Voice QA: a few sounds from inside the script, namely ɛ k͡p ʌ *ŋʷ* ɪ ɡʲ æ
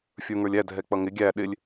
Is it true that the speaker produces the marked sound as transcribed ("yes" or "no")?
no